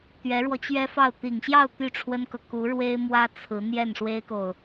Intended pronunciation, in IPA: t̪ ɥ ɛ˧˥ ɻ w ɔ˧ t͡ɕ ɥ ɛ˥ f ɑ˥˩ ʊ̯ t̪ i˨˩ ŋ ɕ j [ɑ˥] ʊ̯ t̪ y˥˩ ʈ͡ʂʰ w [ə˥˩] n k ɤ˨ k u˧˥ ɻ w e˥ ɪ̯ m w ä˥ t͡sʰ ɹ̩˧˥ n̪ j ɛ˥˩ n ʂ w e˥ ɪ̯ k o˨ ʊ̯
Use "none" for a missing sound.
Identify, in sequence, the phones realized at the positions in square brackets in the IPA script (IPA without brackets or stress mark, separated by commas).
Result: ɑ˥˧, ə˥